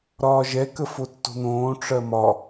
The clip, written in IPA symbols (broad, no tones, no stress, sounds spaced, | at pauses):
ɾ ɒː ʒ ɛ k ə f o tː o̤ n̪ õː ʈ͡ʂ ɜ m ɒ